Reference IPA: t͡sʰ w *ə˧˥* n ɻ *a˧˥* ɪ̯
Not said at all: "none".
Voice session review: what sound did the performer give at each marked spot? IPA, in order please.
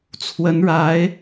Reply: ə˧˥, a˧˥

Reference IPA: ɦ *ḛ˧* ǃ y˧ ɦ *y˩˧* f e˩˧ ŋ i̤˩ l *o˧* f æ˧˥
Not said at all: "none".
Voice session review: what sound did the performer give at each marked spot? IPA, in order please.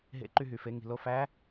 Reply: ḛ˧, y˩, o˧

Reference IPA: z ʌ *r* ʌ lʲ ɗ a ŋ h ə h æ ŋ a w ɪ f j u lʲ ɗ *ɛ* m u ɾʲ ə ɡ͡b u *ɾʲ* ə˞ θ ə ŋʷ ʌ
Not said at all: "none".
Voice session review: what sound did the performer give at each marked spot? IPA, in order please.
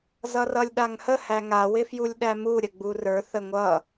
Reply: r, æ, r

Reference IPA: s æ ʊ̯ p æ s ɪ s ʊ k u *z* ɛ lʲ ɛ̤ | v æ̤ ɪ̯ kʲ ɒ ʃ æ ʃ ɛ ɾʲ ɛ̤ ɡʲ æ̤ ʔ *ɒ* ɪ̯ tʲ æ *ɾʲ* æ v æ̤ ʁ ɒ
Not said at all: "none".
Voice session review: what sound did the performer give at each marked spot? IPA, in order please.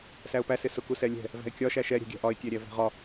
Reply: s, ɒ, ɾʲ

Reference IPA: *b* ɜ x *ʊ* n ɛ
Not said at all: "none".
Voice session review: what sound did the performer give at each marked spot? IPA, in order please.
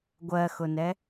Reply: ɡʷ, ʊ

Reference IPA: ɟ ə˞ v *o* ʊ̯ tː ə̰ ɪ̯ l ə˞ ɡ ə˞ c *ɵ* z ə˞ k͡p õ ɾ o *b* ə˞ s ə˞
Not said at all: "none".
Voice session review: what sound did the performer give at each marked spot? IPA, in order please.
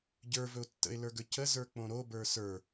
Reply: ɵ, ə, b

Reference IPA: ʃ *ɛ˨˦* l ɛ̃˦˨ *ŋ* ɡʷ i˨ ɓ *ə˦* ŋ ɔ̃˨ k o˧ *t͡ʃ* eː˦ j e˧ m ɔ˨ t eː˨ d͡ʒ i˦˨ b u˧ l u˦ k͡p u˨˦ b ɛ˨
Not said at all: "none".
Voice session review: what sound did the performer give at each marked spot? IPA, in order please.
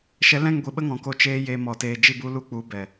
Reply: ɛ˨˦, ŋ, ə˦, t͡ʃ

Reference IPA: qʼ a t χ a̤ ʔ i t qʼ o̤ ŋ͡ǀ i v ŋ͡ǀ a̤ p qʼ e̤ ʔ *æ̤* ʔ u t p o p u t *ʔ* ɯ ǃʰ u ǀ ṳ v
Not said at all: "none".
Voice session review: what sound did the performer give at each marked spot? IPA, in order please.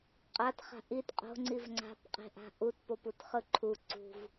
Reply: a̤, χ

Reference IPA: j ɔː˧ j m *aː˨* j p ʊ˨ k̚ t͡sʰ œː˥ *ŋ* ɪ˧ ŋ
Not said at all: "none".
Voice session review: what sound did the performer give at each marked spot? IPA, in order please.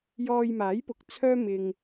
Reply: aː˨˥, m

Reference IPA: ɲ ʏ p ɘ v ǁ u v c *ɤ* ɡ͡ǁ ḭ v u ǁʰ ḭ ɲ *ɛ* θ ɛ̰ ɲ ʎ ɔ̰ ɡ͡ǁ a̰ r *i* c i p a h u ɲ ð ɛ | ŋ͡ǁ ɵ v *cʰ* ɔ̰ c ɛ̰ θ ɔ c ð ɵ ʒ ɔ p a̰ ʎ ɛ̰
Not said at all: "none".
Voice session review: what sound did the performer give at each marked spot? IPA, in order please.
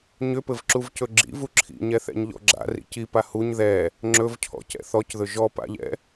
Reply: ɵ, ɛ, ḭ, cʰ

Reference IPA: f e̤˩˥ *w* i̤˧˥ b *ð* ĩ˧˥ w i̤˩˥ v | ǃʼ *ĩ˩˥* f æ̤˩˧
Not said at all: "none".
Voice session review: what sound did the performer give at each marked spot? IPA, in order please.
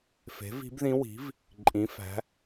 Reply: v, ð, ĩ˩˧

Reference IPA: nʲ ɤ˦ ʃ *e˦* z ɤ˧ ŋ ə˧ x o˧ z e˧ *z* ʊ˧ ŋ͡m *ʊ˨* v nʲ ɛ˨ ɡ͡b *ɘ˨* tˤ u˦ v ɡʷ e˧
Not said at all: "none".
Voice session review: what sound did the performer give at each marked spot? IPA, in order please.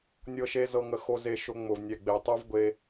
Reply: e˦, ʃ, ʊ˨, e˨

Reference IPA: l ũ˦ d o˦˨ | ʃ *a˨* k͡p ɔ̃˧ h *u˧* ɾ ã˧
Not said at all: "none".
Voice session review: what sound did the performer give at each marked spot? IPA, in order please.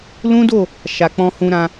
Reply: a˨, ũ˧

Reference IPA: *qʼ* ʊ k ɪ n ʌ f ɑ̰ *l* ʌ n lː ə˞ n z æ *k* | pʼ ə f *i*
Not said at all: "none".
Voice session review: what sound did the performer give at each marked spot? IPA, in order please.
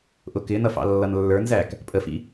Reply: ʔ, lː, k, ḭ

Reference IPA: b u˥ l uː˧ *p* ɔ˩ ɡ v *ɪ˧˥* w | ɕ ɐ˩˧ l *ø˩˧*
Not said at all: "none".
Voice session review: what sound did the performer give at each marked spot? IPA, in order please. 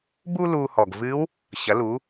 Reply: h, ɨ˧˥, u˩˧

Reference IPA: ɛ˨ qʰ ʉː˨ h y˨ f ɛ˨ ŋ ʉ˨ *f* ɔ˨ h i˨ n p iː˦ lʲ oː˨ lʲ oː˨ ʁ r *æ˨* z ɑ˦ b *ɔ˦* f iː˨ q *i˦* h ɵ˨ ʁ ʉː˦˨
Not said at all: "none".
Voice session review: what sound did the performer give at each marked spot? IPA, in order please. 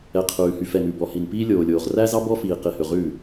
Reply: b, æ˦, ɔ˦, i˨

